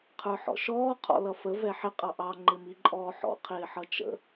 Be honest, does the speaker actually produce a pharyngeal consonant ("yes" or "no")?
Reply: yes